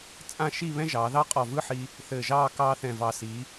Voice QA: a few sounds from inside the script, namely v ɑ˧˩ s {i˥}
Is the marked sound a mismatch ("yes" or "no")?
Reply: yes